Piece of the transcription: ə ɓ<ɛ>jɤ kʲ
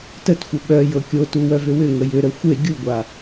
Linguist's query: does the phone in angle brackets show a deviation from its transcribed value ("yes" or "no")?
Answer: yes